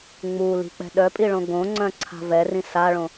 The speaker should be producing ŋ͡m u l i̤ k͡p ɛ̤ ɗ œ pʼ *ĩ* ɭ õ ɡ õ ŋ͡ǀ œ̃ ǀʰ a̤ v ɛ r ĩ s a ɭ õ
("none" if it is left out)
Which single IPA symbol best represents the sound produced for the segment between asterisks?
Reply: i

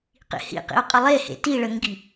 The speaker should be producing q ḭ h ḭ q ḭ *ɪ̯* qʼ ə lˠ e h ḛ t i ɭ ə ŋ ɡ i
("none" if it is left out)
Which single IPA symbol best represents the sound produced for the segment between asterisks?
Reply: ʊ̯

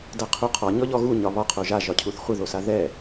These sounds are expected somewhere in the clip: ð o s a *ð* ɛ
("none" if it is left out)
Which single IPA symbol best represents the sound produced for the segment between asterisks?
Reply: ð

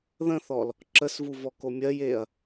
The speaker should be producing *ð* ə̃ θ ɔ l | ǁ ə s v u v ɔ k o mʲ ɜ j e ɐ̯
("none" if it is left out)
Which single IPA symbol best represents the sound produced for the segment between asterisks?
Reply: ð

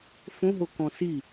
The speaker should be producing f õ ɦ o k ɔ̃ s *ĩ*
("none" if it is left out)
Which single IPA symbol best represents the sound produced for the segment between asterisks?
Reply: i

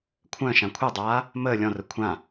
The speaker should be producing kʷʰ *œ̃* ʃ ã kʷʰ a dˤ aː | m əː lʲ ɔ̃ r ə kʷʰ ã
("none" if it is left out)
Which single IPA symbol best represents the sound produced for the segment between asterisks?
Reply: œ̃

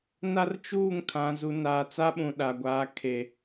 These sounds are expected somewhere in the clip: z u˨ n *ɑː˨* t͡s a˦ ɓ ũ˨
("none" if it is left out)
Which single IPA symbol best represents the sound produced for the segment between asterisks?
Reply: aː˨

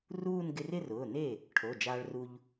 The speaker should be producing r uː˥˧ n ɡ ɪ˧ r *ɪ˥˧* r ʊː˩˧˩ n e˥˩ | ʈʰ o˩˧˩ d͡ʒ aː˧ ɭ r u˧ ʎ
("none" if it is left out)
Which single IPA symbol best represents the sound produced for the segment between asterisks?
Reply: ɪ˥˧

